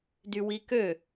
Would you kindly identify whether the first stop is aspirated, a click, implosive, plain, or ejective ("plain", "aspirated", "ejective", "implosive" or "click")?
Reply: plain